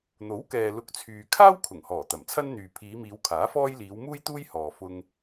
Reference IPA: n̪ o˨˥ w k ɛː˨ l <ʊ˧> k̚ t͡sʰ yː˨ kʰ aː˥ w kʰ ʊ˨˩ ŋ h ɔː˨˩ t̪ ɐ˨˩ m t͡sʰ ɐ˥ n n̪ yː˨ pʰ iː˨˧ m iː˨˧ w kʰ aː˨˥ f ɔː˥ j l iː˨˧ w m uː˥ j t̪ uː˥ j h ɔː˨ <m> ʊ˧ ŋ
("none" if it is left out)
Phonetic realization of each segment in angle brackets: ʊ˧, f

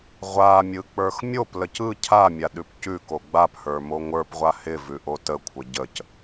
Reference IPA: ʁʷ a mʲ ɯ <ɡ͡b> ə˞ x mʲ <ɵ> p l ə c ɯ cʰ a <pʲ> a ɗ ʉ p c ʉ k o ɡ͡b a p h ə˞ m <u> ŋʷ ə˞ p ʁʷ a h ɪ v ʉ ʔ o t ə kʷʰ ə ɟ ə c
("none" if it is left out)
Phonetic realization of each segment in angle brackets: k͡p, o, mʲ, o

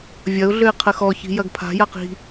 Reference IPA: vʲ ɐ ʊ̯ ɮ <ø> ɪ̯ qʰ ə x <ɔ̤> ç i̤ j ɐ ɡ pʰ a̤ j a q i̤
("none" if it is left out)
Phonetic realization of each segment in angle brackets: ø, ɔ

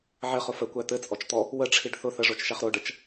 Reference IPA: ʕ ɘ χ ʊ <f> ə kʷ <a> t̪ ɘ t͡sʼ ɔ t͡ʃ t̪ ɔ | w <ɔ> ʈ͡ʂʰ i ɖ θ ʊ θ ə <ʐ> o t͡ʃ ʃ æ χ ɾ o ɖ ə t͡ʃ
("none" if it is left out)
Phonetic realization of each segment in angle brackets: f, æ, ə, ʐ

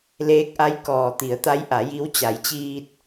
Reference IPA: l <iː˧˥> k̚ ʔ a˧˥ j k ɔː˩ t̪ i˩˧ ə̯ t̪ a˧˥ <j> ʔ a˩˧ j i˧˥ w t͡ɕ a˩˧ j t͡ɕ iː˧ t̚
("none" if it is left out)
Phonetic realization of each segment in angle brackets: eː˧˥, j

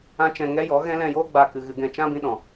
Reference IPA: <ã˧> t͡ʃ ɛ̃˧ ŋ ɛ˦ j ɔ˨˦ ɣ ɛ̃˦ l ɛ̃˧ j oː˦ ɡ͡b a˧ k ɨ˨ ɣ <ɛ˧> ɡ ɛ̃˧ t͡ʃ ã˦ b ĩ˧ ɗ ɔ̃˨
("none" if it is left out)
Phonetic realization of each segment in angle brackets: ã˦, ɨ˧

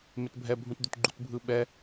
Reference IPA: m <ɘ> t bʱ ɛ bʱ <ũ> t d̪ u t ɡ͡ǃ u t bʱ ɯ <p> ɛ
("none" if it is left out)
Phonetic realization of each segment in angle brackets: e, ũ, ɓ

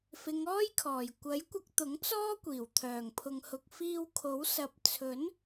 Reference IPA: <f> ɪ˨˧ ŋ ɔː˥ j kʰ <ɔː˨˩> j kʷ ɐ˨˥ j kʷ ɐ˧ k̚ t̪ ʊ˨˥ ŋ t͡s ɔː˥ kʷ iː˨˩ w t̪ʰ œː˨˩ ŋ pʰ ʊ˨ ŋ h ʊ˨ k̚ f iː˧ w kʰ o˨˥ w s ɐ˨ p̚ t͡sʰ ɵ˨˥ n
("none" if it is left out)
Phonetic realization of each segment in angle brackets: f, ɔː˨˩

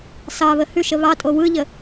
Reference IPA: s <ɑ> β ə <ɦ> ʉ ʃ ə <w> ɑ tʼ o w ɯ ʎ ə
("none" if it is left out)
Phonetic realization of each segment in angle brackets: ɑ, h, β

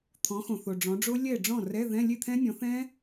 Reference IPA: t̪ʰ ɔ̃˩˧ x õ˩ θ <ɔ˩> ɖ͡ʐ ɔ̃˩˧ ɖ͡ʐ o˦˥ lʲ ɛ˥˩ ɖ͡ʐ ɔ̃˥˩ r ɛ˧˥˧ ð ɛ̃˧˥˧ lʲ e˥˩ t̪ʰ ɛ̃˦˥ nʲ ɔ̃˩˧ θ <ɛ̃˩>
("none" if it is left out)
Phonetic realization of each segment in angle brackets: o˩, ɛ̃˦˥

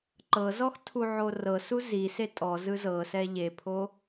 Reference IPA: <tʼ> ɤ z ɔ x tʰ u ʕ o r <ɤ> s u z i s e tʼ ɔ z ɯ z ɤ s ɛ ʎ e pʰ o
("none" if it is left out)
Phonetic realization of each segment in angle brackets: ǃ, ɤ

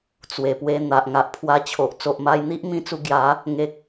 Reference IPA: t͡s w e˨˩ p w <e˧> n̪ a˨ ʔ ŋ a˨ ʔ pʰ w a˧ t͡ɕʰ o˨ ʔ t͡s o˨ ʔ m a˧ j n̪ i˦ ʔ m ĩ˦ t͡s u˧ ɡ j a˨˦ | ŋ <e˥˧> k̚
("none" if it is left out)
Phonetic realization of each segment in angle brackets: e˧, e˨

